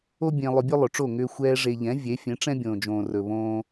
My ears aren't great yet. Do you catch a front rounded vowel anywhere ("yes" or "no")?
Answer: yes